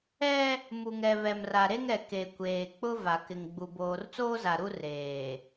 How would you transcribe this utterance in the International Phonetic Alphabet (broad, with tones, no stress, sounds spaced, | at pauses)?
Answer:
ɛ˦ | m u˨ ŋ ɛ˨ β ɛ˨ m r a˨ ɾ e˦ ŋ ɛ˨ k e˨ kʷ eː˨ k͡p ʊ˦ v a˨ k ɪ˨ ŋ ɡ͡b u˨ b oː˨ r t͡s oː˦ z a˨ ɾ u˦ r eː˨